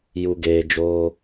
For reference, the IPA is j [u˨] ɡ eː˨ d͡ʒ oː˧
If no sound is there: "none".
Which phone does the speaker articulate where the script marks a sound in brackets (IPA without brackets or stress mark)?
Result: u˨